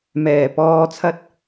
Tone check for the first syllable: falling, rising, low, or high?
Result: low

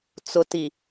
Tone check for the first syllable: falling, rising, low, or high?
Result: low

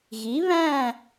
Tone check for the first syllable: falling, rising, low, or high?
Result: rising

